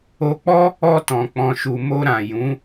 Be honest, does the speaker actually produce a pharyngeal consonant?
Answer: no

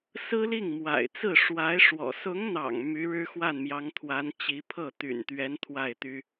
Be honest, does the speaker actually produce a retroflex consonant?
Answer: yes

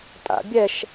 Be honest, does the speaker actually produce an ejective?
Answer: yes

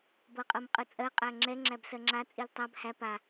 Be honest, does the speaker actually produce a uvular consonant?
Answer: yes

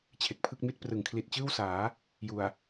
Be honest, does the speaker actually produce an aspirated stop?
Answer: yes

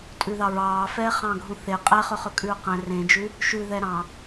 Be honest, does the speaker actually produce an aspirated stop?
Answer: no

